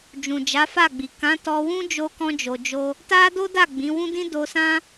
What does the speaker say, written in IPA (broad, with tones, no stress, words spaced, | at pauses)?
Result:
d͡ʒũ˨d͡ʒa˨˦fa˦˨ɡ͡bi˨ kã˨˦tɔ˧wũ˦ d͡ʒo˦kɔ̃˦d͡ʒo˧d͡ʒo˦ | ta˦ do˦da˦˨ ɡ͡bĩ˨˦wũ˦ dĩ˦do˧sã˦